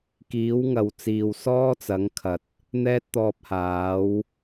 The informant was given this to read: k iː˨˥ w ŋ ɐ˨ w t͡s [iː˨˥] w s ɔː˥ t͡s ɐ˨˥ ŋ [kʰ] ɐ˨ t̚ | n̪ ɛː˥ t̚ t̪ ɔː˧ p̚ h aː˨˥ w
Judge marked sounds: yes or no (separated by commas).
no, yes